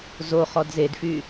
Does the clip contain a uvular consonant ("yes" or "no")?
yes